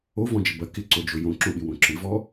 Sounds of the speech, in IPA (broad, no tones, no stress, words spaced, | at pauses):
ovɔ̃d͡ʒɪ bɐ kɪǀod͡ʒo jõǁõɓɪwõ ǁɪvɔ